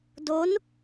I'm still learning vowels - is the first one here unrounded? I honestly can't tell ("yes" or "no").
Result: no